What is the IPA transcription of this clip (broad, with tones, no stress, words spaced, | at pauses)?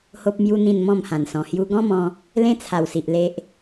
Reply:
ho˦p̚mju˦n̪ĩ˥˧n mɔ̃˥˧mhã˨˩nsɔ̃˨˩ hju˧ɡɔ̃˦mɔ̃˧ | lẽ˦t͡sʰa˨˩wsi˨ʔ le˦ʔ